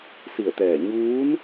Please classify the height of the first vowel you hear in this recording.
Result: high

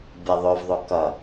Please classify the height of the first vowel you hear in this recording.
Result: mid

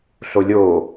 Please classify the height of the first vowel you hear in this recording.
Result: mid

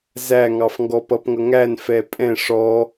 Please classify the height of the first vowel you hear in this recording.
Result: low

